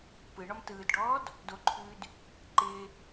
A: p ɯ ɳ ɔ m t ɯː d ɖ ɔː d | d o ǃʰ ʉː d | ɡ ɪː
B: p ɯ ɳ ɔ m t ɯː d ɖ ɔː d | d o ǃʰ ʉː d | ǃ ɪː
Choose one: B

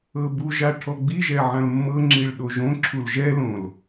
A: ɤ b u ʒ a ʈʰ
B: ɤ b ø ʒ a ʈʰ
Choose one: A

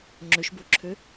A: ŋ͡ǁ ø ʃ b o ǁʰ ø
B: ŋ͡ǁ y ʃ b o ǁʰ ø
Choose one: A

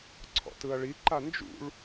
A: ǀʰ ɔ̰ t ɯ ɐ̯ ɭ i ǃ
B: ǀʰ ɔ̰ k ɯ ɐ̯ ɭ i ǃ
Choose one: A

